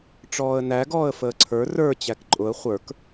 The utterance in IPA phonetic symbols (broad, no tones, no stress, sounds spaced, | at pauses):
ʈ͡ʂ ɔː ə̯ n æ ɡ ɔː ə̯ f əː ǀʰ ə˞ r ə˞ t͡ɕ æ k ǃʼ ʊ ə̯ χʷ ə˞ k